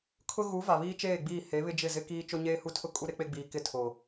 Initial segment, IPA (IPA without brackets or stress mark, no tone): kʰ